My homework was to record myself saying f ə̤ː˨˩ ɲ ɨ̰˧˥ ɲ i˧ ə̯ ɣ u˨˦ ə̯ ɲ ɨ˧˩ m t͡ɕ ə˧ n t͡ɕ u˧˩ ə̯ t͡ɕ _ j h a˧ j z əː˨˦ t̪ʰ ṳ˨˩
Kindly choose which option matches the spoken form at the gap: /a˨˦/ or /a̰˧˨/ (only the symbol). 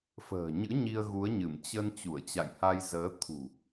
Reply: a̰˧˨